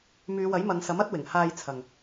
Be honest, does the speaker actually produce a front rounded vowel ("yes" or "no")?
yes